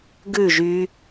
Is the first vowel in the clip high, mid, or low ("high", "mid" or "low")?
high